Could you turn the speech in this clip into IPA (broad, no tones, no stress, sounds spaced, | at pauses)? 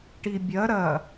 ʈ i bʲ ɐ ɾ ɐ